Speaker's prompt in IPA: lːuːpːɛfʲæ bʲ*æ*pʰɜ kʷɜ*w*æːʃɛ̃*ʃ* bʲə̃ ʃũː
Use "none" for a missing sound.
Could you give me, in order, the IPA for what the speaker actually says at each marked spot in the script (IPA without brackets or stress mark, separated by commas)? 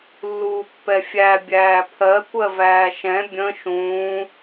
æː, v, none